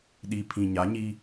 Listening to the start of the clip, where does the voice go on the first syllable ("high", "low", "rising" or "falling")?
low